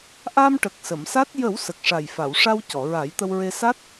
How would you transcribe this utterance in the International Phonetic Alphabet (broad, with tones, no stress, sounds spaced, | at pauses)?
ʔ a˧ m ʈ ə˨˩ k̚ s ə˨˩˨ m s a˦˥ t̚ j ə˨˩˦ w s ə˨˩ k̚ ʂ a˨˩ j f a˨˩˨ w ʂ a˧ w c ɔ˨˩˨ ɹ a˨˩˦ j t̪ ə˧ w ɹ e˧ s a˦˥ t̚